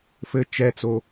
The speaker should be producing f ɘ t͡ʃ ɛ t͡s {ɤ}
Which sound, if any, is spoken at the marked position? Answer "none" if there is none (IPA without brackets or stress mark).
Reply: o